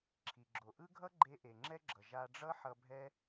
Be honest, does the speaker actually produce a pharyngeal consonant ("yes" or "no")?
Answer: yes